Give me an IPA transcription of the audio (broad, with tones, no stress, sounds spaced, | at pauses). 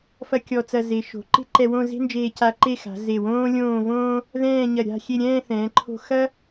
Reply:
f ɐ˥ kʲ ɔ˧ t͡s ɐ˧ z e˩˧ ʃ o̤˩˧ ǃ e̤˥ ǃ ɛ˧ w õ˥˧ z e̤˥ n d͡ʒ eː˧ c a˧ ǃ e˥˧ x a̤˩˧ z e˧˩ w õː˥ lʲ õː˥˧ v õː˥ | ð ɛ̃ː˥˧ ɲ ɐ˧˩ ɾʲ a̤˥˧ xʲ e˥˧ ɾʲ ɛ̃ː˥˧ θ ɛ̃ː˩˧ ǃʰ o̤˧ x ɐ˥